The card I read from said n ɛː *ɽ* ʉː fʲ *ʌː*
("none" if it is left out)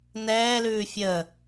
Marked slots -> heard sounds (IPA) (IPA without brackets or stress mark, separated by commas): l, əː